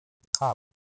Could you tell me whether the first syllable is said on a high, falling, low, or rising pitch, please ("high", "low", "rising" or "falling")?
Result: falling